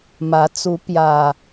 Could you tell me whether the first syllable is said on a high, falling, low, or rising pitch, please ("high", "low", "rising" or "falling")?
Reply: rising